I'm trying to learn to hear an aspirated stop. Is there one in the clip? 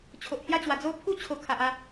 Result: yes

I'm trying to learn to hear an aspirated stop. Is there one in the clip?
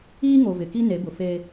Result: no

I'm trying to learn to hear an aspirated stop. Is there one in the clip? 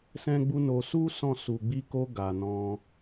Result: no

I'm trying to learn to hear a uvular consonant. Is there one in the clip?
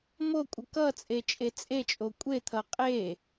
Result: yes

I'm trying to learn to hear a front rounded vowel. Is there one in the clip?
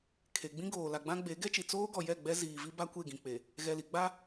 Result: no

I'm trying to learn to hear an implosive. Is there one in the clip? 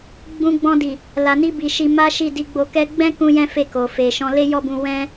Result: no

